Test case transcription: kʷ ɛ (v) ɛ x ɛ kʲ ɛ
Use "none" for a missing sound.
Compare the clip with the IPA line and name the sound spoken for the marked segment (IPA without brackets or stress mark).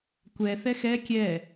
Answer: θ